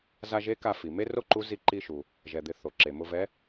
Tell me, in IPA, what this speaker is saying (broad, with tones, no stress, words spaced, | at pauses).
za˧ʒe˧˥ ka˧fi˩me˥ ro˥ǃu˧˥ zi˧ǃi˧ʃu˩ | ʒɛ˩d̪ɪ˩˧ θo˩ǁe˩ mʊ˧vɛ˧˥